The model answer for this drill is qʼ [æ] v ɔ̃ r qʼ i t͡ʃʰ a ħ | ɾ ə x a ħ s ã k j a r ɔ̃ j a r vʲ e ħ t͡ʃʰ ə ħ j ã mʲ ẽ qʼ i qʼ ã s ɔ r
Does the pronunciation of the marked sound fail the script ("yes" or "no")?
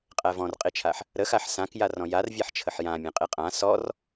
no